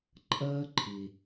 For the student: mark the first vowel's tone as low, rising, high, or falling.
high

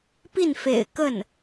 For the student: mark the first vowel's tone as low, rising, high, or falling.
falling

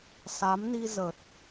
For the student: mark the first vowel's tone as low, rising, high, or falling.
rising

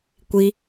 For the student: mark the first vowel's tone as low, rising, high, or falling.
high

